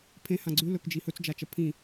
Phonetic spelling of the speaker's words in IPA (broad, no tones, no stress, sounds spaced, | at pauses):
pʰ ẽ h ã ɡ͡ǀ ʉ l ɵ k d͡ʒ i h ɵ t͡s d͡ʒ a t͡ʃ ɐ pʰ ĩ